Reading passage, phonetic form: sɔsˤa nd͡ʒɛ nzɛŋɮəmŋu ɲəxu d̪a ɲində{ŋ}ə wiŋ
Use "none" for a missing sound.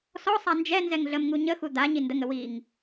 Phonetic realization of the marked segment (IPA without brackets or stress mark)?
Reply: ŋ